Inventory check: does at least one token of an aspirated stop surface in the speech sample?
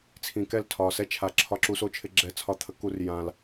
yes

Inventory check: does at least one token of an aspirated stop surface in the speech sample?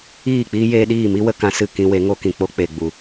no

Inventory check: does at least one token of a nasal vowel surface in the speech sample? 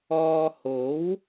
no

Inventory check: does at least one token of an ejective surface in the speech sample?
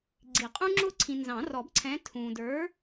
yes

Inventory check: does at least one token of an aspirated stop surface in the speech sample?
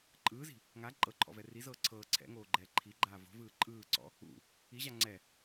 yes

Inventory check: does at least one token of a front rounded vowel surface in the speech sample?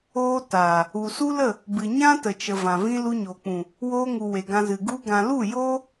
no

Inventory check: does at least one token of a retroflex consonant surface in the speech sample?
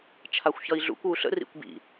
no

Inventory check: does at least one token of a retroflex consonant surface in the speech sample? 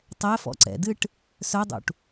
yes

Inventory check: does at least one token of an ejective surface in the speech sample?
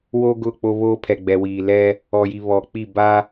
no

